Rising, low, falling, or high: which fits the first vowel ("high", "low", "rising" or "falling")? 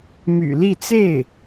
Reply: low